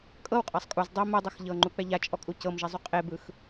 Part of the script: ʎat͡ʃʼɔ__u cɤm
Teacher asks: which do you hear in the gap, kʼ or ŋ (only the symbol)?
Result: kʼ